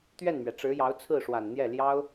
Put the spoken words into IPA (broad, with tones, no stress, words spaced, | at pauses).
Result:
t̪ɥɛ˥˩nmɥɛ˩ʈ͡ʂɻ̩˧˥ jɑ˧˥ʊ̯t͡sʰɹ̩˥˩ʂwa˨˩nn̪jɛ˥˩ ljɑ˥ʊ̯